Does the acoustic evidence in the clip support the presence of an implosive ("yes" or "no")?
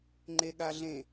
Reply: yes